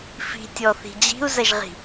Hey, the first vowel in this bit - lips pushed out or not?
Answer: no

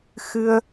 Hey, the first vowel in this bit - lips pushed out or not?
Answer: no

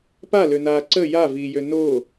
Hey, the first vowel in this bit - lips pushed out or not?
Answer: no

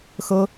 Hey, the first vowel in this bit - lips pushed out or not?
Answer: no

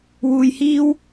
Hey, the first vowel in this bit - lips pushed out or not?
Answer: yes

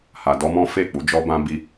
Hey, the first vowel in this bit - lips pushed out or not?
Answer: no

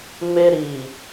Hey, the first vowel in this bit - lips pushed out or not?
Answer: no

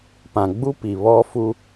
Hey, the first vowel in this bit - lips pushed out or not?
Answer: no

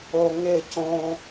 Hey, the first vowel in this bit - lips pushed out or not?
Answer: yes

